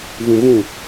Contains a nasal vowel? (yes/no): yes